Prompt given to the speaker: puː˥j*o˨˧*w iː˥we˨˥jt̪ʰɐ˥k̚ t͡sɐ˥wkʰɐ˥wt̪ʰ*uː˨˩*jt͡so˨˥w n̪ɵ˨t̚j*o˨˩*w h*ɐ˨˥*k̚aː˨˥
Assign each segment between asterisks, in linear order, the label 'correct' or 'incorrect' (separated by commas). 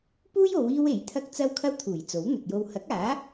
correct, correct, incorrect, correct